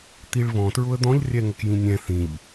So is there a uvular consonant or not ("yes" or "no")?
no